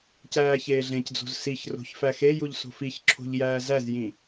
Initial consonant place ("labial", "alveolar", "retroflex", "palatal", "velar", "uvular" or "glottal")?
palatal